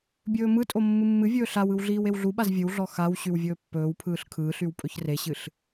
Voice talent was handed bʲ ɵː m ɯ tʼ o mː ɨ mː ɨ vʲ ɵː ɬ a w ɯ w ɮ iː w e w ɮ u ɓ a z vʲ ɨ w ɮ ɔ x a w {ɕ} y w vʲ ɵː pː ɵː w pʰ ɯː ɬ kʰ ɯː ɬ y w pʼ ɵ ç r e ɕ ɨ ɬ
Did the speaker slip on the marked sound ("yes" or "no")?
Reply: no